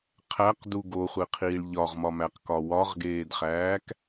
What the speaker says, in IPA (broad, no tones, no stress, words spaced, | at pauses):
qʰæqdu ɡoχʷeqʰiːɭ ʎɒʁmɒmæqkɒ wɒʁɡeːdχæːk